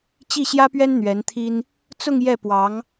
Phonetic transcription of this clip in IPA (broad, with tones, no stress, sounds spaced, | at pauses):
t͡ɕ i˥˩ ɕ j ä˥ p ɥ ɛ˥ n n̪ ɥ ɛ˧˥ n t̪ʰ i˥ n | t͡s ʊ˥˧ ŋ j ɛ˥˩ p w ɑ˧˥ ŋ